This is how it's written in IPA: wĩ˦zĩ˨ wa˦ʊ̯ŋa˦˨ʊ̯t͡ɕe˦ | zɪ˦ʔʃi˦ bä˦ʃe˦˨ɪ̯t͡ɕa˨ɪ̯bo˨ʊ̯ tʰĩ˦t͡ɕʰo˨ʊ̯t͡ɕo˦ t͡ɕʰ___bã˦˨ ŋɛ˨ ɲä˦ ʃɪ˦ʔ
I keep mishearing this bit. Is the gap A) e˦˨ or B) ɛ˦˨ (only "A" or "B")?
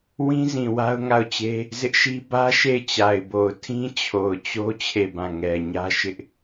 A